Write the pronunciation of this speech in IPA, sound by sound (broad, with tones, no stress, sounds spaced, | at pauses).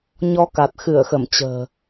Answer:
ɲ ɔ˧ k a˨˩ t̚ x ɨ˧˩ ə̯ x ə˧˩ m t͡ɕ ə̤ː˨˩